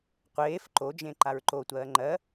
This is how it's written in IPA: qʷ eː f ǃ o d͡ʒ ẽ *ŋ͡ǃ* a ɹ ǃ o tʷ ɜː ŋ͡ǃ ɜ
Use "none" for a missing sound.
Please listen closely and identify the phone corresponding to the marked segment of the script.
ǃ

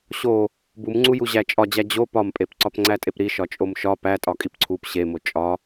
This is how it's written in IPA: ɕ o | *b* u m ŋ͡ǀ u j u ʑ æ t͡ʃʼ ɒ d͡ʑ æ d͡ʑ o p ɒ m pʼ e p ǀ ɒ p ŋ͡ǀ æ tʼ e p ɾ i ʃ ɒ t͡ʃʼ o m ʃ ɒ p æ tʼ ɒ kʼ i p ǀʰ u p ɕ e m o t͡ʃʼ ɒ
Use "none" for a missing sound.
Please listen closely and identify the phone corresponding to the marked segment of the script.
b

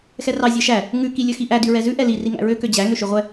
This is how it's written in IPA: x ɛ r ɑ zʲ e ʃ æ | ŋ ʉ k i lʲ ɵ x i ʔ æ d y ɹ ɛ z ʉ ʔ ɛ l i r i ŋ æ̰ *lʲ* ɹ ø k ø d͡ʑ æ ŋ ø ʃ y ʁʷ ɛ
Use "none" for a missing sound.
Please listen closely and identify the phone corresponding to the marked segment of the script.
none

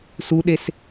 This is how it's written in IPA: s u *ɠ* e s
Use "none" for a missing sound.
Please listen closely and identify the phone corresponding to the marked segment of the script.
ɗ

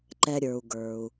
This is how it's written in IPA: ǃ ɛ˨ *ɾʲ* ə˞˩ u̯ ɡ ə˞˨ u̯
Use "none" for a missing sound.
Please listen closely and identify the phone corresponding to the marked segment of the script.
ɾʲ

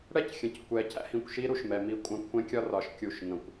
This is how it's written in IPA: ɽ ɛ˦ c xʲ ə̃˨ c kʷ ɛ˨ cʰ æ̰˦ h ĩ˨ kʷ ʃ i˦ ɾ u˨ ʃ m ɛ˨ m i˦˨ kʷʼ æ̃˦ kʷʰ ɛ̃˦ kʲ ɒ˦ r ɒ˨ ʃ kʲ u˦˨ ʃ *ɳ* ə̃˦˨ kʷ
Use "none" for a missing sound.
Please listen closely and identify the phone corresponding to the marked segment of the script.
ŋ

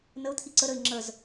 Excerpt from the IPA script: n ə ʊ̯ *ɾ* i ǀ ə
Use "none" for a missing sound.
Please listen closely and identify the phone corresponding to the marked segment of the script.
t̪ʰ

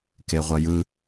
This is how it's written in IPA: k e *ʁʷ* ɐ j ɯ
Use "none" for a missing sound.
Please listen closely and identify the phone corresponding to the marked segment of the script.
ʁʷ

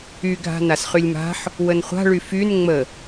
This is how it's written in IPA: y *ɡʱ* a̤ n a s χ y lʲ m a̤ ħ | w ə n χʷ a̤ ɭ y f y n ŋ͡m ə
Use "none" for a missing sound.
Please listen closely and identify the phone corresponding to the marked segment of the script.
ɡʱ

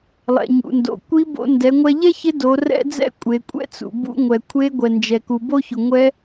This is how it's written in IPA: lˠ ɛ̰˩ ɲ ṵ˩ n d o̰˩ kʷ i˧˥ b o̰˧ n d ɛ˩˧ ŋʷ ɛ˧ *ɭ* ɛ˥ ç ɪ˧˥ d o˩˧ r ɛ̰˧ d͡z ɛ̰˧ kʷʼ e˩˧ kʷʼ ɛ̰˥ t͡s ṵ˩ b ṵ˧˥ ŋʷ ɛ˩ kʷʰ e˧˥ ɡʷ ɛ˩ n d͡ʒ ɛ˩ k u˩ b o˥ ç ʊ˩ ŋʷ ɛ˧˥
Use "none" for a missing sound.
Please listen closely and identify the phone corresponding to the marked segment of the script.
ʎ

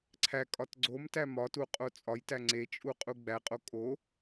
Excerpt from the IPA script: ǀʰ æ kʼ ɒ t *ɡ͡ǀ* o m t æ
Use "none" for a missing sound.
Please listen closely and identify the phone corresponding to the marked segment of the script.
ɡ͡ǀ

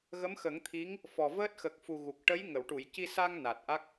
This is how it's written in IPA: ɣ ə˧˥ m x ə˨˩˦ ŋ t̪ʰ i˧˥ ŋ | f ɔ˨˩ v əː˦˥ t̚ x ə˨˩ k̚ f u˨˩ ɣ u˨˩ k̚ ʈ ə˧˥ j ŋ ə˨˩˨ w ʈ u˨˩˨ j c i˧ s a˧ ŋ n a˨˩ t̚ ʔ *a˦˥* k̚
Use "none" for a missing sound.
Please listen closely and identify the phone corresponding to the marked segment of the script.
a˦˥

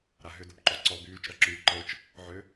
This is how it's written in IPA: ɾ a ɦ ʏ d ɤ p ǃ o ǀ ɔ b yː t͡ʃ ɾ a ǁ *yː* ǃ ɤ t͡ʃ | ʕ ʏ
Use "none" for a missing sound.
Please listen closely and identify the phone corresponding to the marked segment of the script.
yː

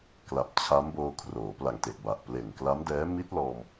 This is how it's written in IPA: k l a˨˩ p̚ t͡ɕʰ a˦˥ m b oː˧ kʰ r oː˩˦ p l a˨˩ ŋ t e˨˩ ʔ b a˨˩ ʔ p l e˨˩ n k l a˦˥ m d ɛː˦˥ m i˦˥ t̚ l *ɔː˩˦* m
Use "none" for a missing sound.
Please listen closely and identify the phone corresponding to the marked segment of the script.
ɔː˧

